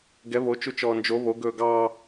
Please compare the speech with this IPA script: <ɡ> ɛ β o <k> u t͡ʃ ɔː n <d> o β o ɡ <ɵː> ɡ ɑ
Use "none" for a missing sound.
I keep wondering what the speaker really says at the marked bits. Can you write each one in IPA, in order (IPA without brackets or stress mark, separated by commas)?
ɡ, t͡ʃ, d͡ʒ, ɵː